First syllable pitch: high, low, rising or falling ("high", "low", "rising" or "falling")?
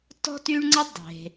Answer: high